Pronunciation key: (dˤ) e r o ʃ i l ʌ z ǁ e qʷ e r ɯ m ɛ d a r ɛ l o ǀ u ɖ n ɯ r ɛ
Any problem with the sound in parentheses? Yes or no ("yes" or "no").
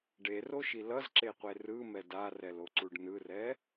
yes